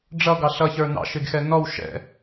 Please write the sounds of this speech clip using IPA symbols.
ɖ͡ʐ ʌ ɡ ɑ ɬ ʌ ç ə˞ n ɑ̰ ʃ ɪ ɡ x ɛ n ɔ w ʃ ɛ̰

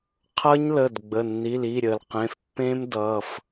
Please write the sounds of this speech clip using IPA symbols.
qʰ ʌ˦˥ ɲ l ə˩˧˩ d ɡ͡b ə˩˧˩ nː i˩˧˩ l i˩˧˩ ɾʲ ə˩ l q ẽ˩˧˩ f pː ẽ˦˥ m d ʌ˩˧˩ f

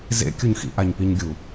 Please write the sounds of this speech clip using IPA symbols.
z ḛ kʲ u ɲ x ḭ ʔ a ɲ p i ɲ ɡʲ u

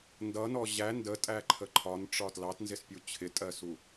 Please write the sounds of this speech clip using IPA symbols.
n d ʌ n ɔ ʑ æ n d ə tʼ æ ǃʰ ə ǃʰ ɒ n ʈ͡ʂ ɒ t l ɑ t n z ɪ s pʲ u t͡ɕʰ ɪ tʼ ɜ s u

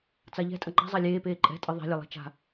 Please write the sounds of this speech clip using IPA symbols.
t͡s a ʎ ɛ̤ tʼ ɐ ŋ͡ǃ a̤ zˤ a lʲ eː p eː ǃʼ ɛ̤ tʼ ɨ ðˤ ɛ̤ lʲ ɐ lˠ ɛ̤ t͡ʃ a̤

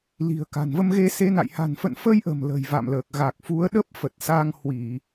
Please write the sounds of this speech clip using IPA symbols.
l i̤˨˩ ə̯ k a̤˨˩ n v ə˧ m ɣ e˧ s e˨˦ n a̰˧˨ j h a̤˨˩ n f ə̰˧˨ n f ə˧ j ʔ ə̤˨˩ m l ə̤˨˩ j v a̰˧˨ m l əː˨˩ k̚ ɣ a˨˩ k̚ f u˨˦ ə̯ ɗ ə˦˥ p̚ f ə˨˩ t̚ s a˧ ŋ h w i˧˩˨

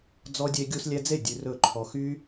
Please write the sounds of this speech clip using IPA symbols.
d͡z ɔ˦ dʲ e˦ ɡʲ u˦ s lʲ ɛ˦ d͡z e˥˨ dʲ ʉ˦ r ɵ˥˨ ǃʰ ɔ˦ x y˦

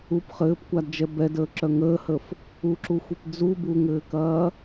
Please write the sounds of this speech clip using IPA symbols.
u p χ ɘː p kʷ a d d͡ʒ ɛ b ɛ d əː ǁ œ ŋ əː h ə f | u ǁ u xʷ i p d͡z u b u ŋ ɘː k ɐː

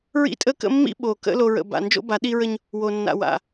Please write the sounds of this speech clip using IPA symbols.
ɹ ḭ˦ tʼ ə˦ k ə̰˦ mː ḭ˦ ɓ o˨ k ə̰˦ l o˨ ɹ ə̰˨ b a̰˨ n d͡ʒ o̰˦ b a˨˦ ɗ i˦ ɹ ə˦ ɲ | w o˨ nː a̰˨ w a̰˨

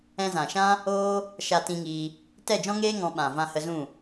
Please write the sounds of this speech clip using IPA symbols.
ɛ̃˧ z ã˨ ʃ ã˦ | oː˦ | ʃ a˧ t ĩ˧ ŋ iː˧ | t ɛ˦˨ d͡ʒ ɔ̃˦ ŋ eː˦ ŋ ɔ̃˧ ɓ ã˨ v ã˧ h ə˧ z ũ˦˨

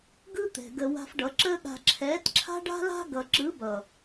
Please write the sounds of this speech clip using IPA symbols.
ɡ ɯ˦ t̪ ɛ̤˨ ɡ ə˧ w a̤˧ f ɖ ʌ˨˦ ǁ əː˦ ɠ a̤˧ ǁʰ ɛː˨˦ t ǁʰ a̤˦ ɖ a̤˦ l a̤˦ ɡ ʌ˨ ǁ ɯ˨˦ b ʌ˨

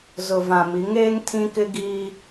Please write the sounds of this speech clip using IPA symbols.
z ʊ˨ v ã˨ m i˨˦ ŋ eː˦ ŋ tʰ ĩ˦ k ɪ˦ ɡ iː˦

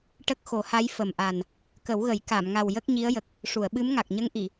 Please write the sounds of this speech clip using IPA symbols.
ʈ ə˦˥ k̚ x o˨˩˦ h a˧˥ j f ə˨˩ m ʔ a˨˩ n | k ə˨˩˦ w ɣ ə˨˩˦ j k a˨˩˨ m ŋ a˨˩ w j ə˦˥ k̚ ɲ i˧˥ ə̯ j ə˨˩ k̚ | ʂ u˨˩˨ ə̯ ɓ ɨ˧˥ m ŋ a˨˩ k̚ ɲ ə˧˥ ŋ ʔ i˨˩˨

